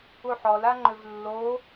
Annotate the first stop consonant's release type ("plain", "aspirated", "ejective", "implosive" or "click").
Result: click